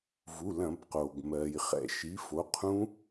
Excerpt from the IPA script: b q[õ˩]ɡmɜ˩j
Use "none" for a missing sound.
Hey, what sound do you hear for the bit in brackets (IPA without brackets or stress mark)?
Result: o˩